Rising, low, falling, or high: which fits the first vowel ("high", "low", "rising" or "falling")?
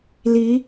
rising